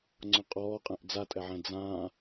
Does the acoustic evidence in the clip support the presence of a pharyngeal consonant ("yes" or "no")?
yes